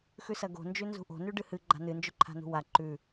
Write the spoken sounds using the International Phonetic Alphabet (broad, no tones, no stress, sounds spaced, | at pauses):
x ʉ s ɐ ɡ o̤ n d͡ʒ ʉ n z ṳ ʔ o̤ n ʉ ɖ ɨ h ɨ ɡ͡ǃ a̤ n ɨ n d͡ʒ ɵ ǃʰ a̤ n ṳ w a ǃ ʉ